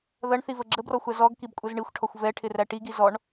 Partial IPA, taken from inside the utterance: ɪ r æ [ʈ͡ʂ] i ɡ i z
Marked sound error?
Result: yes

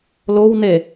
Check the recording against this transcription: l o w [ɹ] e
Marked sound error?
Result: yes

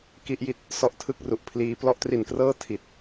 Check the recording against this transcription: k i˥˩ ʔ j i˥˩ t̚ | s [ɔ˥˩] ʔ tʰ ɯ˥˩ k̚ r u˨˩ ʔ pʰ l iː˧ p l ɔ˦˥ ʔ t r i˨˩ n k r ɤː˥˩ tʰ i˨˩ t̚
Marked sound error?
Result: yes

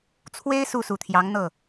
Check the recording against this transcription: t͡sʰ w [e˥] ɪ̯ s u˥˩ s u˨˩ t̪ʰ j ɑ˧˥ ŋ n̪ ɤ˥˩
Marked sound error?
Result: no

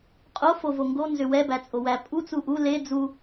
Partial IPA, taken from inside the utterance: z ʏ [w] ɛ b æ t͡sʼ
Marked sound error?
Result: no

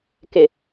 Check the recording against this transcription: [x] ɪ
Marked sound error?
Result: yes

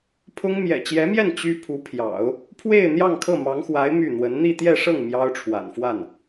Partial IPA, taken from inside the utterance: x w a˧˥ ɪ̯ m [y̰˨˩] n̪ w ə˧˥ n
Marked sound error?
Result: yes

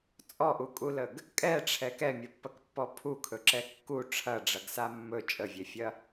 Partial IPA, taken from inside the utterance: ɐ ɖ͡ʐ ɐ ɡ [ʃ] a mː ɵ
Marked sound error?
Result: yes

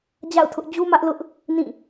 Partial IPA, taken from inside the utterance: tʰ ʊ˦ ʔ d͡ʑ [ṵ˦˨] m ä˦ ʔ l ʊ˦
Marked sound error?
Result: yes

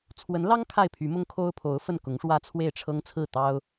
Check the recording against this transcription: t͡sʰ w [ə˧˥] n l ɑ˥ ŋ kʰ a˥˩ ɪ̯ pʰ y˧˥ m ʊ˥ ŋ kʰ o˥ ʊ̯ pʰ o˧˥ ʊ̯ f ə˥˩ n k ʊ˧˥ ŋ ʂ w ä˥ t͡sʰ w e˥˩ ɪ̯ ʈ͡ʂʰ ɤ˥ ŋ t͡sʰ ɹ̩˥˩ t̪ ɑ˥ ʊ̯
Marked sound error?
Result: no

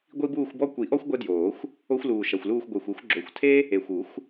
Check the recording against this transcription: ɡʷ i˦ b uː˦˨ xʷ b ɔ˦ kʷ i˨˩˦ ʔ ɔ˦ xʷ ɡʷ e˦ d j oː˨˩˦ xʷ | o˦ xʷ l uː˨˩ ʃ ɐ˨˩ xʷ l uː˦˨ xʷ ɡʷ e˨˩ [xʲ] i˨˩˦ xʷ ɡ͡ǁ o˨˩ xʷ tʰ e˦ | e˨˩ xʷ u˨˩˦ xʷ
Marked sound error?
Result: yes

